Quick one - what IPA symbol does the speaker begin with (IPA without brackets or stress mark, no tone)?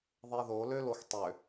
ðˤ